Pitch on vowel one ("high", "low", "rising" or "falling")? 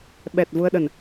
low